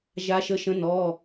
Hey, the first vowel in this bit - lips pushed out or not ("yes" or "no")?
no